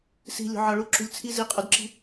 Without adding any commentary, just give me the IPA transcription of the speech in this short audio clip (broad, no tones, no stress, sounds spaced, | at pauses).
s i̤ lʲ o̤ ʕ ɒ ɭ u ǁ ṳ lʲ t͡sʰ i z i qʼ u d ǁ i̤